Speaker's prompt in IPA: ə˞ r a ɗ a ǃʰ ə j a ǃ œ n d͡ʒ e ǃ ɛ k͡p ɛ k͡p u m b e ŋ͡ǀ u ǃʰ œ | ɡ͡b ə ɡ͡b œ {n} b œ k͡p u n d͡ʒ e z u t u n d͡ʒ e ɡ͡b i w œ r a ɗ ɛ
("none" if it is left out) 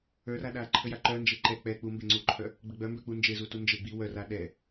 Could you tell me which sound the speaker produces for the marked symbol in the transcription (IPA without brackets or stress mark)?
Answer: m